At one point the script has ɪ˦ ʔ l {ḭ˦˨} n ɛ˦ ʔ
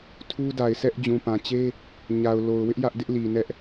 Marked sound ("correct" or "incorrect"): incorrect